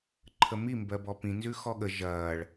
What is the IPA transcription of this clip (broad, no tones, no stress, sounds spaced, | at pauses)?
ǃʰ ə m i m b ɜ b ɔ p ĩ n z ʉ x ɔ ɠ ə ʒ ɐː ɭ